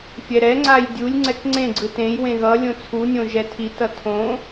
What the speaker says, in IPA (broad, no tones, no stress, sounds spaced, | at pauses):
fʲ ɛ ɾ ɛ ŋ͡ǀ a j dʲ u lʲ ŋ͡ǀ ɛ k ŋ͡ǀ ẽ ɡ͡ǀ ɯ t ẽ j w ẽ ɣ ʌ lʲ õ t͡sʰ u nʲ õ ʒ ɛ tʰ i t ʌ tʰ õ